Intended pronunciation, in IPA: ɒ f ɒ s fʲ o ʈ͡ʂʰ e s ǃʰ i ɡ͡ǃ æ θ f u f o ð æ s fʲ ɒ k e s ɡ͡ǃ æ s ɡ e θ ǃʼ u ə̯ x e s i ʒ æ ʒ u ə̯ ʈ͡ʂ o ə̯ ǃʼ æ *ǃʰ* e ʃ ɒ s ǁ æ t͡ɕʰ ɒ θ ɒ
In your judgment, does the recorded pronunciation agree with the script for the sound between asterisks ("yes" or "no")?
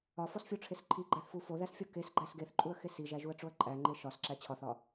no